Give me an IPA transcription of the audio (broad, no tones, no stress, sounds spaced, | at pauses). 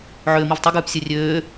ʕ øː m i v tˤ i ɡ ʉː p sʲ ø rʲ øː